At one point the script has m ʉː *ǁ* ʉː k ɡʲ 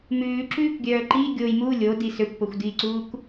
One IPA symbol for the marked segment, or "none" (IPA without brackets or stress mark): ǁ